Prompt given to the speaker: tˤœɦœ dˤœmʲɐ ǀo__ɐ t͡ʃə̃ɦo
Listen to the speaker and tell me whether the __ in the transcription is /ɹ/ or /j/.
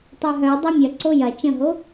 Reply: j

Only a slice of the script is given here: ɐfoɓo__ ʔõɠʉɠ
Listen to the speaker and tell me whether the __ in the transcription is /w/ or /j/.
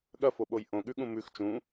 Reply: j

